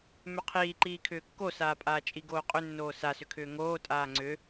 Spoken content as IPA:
m ʏ qʰ iː ǃ iː kʰ ʏː kː o s aː pʼ aː t͡ʃʼ i ɡ oː qʼ ʏ nː oː s a s ʏ kʰ ʏː ŋ oː tʼ aː ŋ͡ǀ ʏ

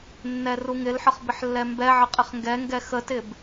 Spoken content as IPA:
nː ɛ r u ŋ ɪ l ħ ə χ b ɪ ħ lː ɛ m b ɛ ʕ ə qʼ ɪ χ ŋ ɡ ɛ ŋ ɡ ɛ x ə t ɪ b

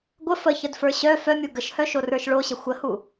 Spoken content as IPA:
ɡʷ ə f ə ç ə d f ə˞ ɕ œ f œ mʲ u ɡ ə ʃ h œ ʃ o r ə˞ ʃ ɭ o ɕ ə xʷ ə h u

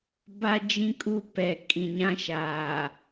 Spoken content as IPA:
b a˦ d͡ʒ ĩ˦ kʼ u˦ p ɛ˨ kʼ ĩ˨ ɲ ã˦ ʃ aː˨

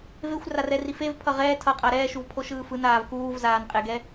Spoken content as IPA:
v e xʷ r a r ɛ r i f e v pʰ ʌ ʁ ɛː tʰ ʌ qʼ a ɾ ɛː ʃ u v pʰ o ʃ ɯː f ɯ n aː v k uː v z aː n qʼ e ɡ ɛ

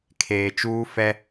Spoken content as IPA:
kʰ eː˨ t͡ʃ uː˦ f ɛ˦

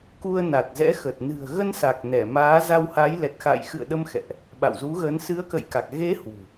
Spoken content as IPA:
k u˧ ə̯ n a˨˩ t̚ z ɛ̰˧˥ x ə˨˩ t̚ n ɨ̤˨˩ ə̯ ɣ ə˧ n s a˨˩ k̚ n ɛ˧˩ m aː˨˦ z a˧ w h a˨˦ j l ɛ˨˩ t̚ x a̰˧˨ j x ɨ̰˧˨ ə̯ ɗ ə˧ m x ɛ̰˧˨ ʔ | ɓ a̰˧˨ w z u˨˦ ɣ ə˨˦ n s ɨ˨˦ ə̯ k ə̰˧˨ j k a˨˩ k̚ ɣ e˨˦ h w ṳ˨˩

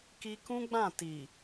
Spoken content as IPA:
k i˧ k ũ˦ ɡ͡b ã˦˨ t i˨

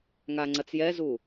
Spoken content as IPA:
ŋ a ŋ͡ǀ ɐ t͡s j ɛ z u

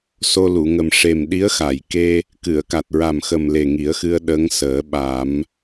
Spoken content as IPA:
s o˧ l u˨˩˨ ŋ ə˨˩ m ʂ e˨˩ m ɗ i˧˥ ə̯ x a˨˩˨ j k e˧ | k ɨ˨˩˨ ə̯ k a˨˩ t̚ ɹ a˨˩ m x ə˨˩ m l e˨˩ ŋ i˨˩˦ ə̯ x ɨ˧ ə̯ ɗ ə˧˥ ŋ s əː˨˩˦ ɓ a˨˩˦ m

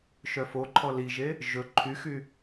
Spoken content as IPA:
ʃ œ f o ǃʰ ɔ l i ʒ e | ʒ ɵ ǃʰ y x y

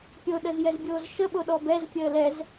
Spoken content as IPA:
pʲ o ɗ ə z j ɛ z bʲ oː z ʃ ə ɓ o ɗ ɔ b ɛ z pʲ əː l ɛ z

